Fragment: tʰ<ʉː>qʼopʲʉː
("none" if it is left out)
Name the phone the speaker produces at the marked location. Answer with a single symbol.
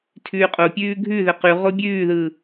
ʉː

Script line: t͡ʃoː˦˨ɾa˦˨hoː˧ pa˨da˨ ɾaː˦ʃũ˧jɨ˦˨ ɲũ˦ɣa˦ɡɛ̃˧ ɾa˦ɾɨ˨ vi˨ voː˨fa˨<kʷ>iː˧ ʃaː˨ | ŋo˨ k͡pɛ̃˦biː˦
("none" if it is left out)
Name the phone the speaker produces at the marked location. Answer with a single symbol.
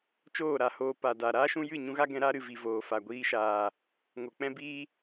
ɡʷ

